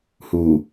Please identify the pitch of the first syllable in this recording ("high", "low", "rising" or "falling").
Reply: low